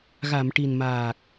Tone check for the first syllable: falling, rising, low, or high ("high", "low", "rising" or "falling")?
low